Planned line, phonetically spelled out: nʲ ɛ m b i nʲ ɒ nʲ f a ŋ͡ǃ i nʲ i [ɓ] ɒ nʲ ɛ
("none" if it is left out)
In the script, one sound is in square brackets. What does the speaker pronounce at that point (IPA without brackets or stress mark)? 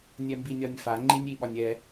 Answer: ɓ